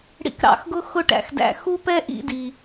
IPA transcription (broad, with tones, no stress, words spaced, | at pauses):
ɽḭ˧kɾɑ̰˧xɡʊ˥ xʊ˥ʈæ̰˩xdæ̰˧ xu˥pɛ˥ʔḭ˧di˩